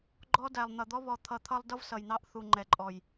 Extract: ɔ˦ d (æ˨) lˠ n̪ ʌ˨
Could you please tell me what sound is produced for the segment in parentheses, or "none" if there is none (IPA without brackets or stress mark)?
æ˨